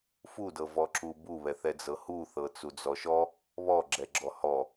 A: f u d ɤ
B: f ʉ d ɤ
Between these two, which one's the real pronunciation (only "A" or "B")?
A